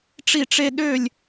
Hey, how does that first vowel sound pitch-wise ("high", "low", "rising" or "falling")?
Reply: falling